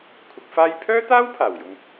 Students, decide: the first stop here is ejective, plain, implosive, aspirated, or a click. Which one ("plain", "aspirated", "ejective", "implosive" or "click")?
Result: aspirated